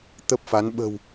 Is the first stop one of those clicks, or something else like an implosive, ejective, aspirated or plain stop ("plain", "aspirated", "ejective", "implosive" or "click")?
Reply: plain